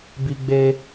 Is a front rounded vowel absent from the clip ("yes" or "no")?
yes